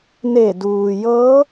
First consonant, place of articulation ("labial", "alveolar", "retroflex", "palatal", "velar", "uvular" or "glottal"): alveolar